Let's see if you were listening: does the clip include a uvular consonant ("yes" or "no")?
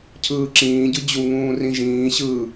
no